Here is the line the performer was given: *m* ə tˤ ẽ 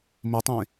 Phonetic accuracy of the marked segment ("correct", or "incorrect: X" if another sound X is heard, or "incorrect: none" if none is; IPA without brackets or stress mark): correct